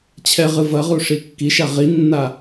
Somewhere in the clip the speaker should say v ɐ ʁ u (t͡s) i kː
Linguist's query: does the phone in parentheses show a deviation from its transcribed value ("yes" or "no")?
yes